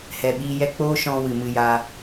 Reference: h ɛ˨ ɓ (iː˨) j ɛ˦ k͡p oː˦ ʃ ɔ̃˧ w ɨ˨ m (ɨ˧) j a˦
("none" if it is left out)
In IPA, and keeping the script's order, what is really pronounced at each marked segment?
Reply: iː˧, ɨ˧

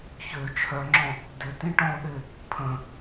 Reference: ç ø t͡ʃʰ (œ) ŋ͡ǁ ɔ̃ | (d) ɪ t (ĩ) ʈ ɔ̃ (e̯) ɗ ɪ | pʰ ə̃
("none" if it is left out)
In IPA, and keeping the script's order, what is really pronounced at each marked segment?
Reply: œ, d, ĩ, o̯

